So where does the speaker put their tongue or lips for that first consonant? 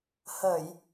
throat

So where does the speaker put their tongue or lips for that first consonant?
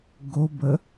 velum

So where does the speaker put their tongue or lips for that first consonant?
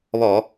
lips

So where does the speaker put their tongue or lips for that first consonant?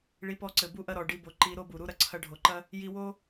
retroflex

